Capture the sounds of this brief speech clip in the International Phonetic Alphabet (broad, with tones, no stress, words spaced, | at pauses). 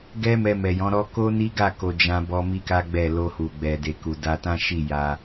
ɡɛ˦ mɛ˧mɛ˨jɔ̃˨˦ɾɔ˦ ko˦ ni˦ɡa˦˨ko˨ d͡ʒã˧bɔ˧ mi˦ka˦ɡ͡bɛ˦˨ lo˧hu˨ ɡ͡bɛ˨de˨ku˨ da˧tã˦ ʃi˦˨ja˧